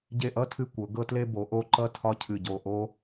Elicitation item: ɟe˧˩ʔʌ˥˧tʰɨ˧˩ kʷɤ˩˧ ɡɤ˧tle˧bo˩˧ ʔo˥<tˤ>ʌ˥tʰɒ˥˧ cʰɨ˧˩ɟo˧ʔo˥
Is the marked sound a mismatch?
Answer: yes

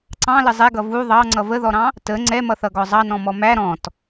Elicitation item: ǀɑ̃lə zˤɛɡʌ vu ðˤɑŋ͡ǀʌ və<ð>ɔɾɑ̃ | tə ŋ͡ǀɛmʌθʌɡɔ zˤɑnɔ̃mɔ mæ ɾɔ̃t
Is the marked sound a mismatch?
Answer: no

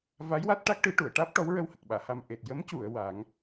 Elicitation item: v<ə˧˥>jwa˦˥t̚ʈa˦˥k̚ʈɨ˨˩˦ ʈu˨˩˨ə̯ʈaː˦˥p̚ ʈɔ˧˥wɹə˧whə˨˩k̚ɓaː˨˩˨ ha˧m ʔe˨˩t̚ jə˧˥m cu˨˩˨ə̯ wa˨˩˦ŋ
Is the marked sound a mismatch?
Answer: yes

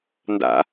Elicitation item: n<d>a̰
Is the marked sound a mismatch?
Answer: no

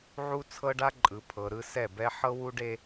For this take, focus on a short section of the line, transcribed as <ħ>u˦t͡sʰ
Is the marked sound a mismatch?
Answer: yes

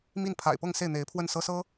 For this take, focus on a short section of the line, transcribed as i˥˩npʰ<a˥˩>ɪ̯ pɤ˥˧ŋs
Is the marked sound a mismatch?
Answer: yes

